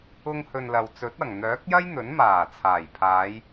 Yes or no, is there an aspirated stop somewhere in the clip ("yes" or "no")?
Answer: yes